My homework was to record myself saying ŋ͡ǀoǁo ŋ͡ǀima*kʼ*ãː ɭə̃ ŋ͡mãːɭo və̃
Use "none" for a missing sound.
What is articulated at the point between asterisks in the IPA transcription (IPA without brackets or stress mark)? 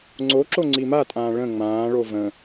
tʼ